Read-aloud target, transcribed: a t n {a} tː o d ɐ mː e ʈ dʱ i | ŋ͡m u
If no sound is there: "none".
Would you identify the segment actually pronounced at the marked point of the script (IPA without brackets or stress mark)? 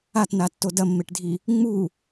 a